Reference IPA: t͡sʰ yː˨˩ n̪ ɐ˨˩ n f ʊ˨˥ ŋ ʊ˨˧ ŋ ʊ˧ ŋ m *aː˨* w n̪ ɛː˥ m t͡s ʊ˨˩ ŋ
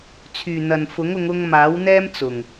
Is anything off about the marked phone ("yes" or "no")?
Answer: yes